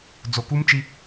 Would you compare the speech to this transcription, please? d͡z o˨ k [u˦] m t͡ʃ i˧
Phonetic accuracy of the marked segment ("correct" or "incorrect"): correct